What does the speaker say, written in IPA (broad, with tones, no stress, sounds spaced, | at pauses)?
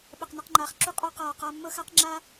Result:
ɓ ə˨ q n ə˧ q ŋ͡ǃ aː˨ χ ǁ u˦ qʼ ɑ˧ q aː˨ q a˧ mː ɤ˦ x a˦ q ŋ͡ǁ a˦